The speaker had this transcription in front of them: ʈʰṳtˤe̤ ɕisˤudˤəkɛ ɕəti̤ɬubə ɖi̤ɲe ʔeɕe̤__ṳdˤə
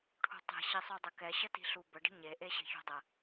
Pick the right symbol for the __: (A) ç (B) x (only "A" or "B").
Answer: A